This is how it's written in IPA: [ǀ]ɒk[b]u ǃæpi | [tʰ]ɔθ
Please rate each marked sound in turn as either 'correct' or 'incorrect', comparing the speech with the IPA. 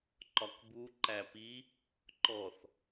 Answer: incorrect, correct, incorrect

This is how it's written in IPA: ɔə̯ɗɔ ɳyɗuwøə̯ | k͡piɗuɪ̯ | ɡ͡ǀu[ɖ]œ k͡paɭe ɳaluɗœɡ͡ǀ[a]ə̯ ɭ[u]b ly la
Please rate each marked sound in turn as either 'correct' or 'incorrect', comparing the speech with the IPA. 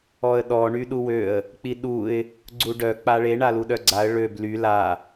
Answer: correct, correct, incorrect

